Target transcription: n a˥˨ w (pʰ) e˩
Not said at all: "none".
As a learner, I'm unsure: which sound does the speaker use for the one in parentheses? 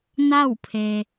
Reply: pʰ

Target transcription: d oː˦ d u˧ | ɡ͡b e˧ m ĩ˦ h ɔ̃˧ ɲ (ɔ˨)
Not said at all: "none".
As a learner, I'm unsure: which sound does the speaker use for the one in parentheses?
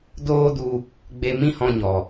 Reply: ɔ˨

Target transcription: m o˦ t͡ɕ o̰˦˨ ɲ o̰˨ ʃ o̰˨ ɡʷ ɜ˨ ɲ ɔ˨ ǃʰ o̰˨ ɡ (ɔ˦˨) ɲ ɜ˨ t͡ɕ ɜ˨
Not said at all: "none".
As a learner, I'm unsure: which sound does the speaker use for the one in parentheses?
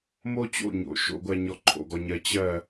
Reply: ɔ˨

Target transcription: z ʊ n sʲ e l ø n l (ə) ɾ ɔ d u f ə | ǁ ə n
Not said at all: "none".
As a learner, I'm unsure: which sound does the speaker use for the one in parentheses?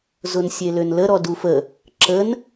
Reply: ə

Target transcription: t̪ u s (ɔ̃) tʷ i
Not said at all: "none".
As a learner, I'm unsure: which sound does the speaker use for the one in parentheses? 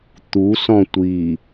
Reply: ɔ̃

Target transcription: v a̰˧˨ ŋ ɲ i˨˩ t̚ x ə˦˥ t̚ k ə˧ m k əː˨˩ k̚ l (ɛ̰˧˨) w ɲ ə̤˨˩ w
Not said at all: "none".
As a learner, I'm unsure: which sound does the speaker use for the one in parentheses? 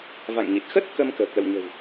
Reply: ə̰˧˨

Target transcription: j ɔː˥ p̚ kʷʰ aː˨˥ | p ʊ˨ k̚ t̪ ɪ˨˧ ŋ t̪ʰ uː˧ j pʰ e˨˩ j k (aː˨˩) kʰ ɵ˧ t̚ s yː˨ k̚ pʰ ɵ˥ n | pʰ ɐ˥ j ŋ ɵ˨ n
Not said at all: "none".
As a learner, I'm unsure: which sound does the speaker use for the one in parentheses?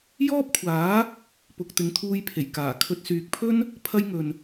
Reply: aː˨˩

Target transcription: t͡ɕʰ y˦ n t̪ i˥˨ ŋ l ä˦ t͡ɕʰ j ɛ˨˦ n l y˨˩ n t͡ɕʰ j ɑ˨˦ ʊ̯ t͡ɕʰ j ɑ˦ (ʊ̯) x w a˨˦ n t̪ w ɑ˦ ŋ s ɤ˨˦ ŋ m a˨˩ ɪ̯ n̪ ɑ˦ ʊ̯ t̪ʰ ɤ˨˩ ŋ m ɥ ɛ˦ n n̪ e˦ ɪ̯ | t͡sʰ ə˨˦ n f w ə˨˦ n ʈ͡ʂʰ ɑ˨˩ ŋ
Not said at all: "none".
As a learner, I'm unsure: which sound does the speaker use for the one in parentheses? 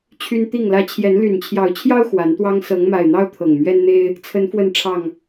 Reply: ʊ̯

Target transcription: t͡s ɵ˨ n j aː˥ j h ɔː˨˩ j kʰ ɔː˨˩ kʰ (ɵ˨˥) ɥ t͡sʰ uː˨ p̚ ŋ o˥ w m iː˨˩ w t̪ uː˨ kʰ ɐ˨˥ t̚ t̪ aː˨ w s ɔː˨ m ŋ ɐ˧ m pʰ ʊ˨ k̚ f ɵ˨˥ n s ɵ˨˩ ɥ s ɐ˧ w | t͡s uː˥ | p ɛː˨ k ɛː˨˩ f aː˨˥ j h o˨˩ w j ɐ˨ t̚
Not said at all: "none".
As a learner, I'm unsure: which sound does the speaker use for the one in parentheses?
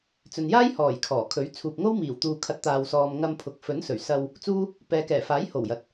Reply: ɵ˨˥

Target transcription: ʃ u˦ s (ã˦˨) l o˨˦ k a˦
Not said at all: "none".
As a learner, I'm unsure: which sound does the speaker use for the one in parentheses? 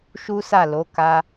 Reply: a˦˨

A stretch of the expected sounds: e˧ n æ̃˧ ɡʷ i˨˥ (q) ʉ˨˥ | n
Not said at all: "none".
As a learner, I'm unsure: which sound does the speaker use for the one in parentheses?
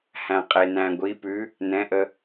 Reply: p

